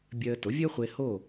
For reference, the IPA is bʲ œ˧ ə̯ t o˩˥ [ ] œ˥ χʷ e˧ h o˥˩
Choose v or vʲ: vʲ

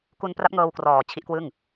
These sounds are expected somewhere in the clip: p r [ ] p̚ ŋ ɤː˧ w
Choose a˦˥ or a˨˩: a˦˥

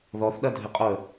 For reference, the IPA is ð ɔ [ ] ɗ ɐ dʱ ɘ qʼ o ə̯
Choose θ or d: θ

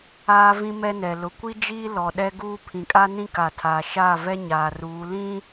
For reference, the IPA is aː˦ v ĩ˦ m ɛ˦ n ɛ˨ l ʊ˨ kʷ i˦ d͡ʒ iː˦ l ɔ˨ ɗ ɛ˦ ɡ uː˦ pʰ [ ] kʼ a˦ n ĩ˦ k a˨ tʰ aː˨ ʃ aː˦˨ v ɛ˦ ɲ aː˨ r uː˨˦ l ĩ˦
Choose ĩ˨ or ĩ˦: ĩ˨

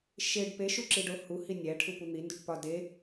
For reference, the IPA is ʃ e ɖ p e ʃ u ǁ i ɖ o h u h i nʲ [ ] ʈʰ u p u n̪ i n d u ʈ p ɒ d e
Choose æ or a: æ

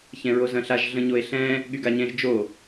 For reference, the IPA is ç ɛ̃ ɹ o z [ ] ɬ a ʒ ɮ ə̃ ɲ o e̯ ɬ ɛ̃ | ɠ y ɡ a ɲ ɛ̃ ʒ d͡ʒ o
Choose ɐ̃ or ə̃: ɐ̃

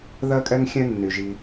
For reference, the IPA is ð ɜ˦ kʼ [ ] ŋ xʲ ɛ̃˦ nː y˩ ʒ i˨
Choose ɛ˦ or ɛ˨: ɛ˦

